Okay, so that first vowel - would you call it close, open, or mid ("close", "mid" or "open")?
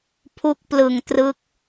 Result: close